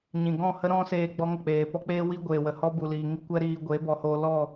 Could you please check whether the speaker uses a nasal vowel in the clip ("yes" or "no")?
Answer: yes